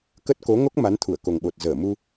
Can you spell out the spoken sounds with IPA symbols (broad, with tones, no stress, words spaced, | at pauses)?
kə˦˥t̚ ko˨˦ŋo˦˥k̚ ma˨˦nt̪ʰu˧˩ə̯ko˨˩ŋɓo˨˩t̚ zəː˧˩mu˧